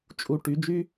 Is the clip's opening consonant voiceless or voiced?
voiceless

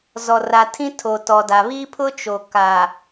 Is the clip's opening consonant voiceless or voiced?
voiced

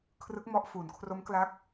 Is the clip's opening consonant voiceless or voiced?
voiceless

